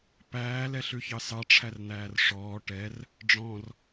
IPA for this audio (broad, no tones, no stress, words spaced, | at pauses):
pæːlɛɬʉçɑ sɑʈ͡ʂʰærn̪æːr ʂɔː ʈɛr | ɖ͡ʐɔ̃r